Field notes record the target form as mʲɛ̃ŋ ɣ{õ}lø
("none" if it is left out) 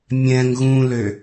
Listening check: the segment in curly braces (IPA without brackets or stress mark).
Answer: ũ